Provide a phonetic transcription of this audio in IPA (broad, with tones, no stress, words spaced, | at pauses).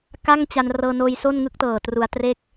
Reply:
ka˥˩ŋt͡ɕa˧n rɤː˧noː˧j so˥˩nŋɯ˥˩k̚ tɤː˨˩ tru˧a̯ tre˥˩k̚